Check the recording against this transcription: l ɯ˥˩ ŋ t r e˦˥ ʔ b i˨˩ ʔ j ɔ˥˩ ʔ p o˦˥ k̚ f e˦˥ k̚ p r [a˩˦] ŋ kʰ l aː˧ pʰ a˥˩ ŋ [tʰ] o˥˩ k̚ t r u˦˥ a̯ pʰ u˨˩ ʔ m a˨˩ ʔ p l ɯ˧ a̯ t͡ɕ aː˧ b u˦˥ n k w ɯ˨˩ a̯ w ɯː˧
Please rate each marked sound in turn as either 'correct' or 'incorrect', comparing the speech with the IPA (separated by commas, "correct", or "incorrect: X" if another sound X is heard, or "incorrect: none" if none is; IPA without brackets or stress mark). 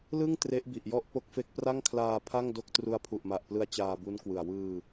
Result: incorrect: a˥˩, incorrect: d